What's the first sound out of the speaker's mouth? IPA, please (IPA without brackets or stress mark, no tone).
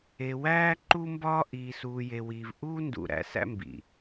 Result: e